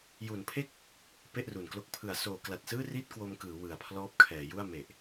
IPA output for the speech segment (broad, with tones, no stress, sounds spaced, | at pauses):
j u˩˦ n pʰ e˥˩ k̚ | p e˥˩ ʔ r u˨˩ n k l o˦˥ k̚ pʰ ɯ˩˦ a̯ s oː˩˦ k l a˨˩ t̚ s ɯː˥˩ r i˥˩ t̚ k w o˧ m k ɯː˩˦ w ɯ˨˩ a̯ pʰ l ɔː˦˥ p̚ kʰ ɛː˩˦ j u˥˩ a̯ m e˨˩ ʔ